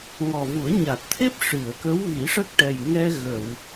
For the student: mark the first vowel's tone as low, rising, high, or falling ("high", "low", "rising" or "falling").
low